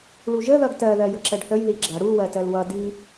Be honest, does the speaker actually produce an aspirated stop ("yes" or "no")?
no